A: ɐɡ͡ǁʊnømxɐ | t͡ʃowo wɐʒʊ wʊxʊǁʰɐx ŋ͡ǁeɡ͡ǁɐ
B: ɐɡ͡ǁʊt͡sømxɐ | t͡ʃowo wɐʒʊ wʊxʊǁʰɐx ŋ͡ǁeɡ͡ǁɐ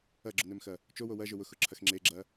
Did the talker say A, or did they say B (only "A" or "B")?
A